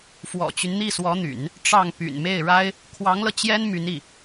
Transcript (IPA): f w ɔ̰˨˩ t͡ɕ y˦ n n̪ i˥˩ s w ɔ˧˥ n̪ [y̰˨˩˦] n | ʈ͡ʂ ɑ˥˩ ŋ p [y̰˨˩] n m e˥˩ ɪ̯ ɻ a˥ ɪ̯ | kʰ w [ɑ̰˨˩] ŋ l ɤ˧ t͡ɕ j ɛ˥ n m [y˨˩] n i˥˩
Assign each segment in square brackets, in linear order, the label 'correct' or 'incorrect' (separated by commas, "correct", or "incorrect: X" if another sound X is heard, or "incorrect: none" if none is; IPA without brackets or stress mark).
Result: correct, correct, incorrect: ɑ˧˥, incorrect: y˧˥